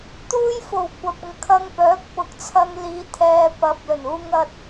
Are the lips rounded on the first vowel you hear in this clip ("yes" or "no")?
yes